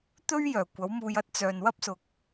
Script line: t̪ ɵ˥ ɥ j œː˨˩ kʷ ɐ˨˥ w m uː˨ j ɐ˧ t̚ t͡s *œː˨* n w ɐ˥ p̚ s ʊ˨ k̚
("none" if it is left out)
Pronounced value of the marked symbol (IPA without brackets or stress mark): œː˨